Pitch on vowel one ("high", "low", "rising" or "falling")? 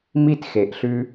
high